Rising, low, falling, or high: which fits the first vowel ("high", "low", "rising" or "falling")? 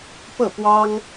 falling